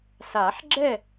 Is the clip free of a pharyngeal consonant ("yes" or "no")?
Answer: no